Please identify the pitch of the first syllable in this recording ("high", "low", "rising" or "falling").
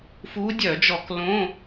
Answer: rising